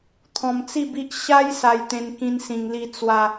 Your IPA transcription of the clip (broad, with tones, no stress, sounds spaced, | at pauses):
t̪ʰ ɔ̃˧ m t͡s i˥˧ b i˦ ʔ ɕ a˦ j s a˧ j t̪ ẽ˧ n k ĩ˦ n s ĩ˧ ŋ l i˦ t͡s w a˦